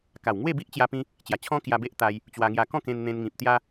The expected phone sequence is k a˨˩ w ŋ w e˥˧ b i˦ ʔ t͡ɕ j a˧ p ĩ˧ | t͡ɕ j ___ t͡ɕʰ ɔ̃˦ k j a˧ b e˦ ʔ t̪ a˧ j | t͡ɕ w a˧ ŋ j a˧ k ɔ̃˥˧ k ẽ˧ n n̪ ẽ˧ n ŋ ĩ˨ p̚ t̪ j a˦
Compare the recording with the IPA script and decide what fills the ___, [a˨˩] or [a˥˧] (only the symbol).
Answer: a˨˩